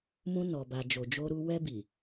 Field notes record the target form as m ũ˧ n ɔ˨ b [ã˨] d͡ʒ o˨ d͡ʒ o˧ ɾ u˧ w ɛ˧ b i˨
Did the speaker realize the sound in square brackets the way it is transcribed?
no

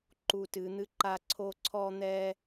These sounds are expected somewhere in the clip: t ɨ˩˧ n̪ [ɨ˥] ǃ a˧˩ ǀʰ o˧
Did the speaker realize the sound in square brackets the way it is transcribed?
no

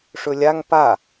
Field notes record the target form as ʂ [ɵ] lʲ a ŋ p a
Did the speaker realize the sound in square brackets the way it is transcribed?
yes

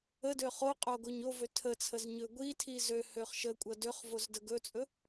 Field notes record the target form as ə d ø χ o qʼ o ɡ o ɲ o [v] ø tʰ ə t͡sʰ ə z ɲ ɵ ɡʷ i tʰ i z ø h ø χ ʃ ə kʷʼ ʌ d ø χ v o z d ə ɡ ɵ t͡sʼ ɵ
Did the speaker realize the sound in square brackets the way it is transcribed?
yes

